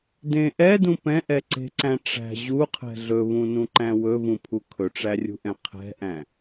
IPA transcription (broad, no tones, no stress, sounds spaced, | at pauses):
d ẽ ʔ ɛ d ũ p ɛ̃ ʔ ɛ ǀ e̤ ǀ æ̃ ʈ͡ʂ æ̤ ʑ u qʰ ɛ̤ ɮ ɵ β ũ n ũ ǃ æ̃ w ɵ v ũ pʰ u kʰ ɵ ʈ͡ʂ æ rʲ ṳ ʔ ɛ̃ qʰ ɛ̤ ʔ æ̃